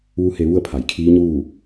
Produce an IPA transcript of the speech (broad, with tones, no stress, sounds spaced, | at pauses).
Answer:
ʋ u˧˥ h e˧ ʋ u˥˨ ə̯ pʰ a˩˧ j kʰ iː˧˥ ɲ uː˥˨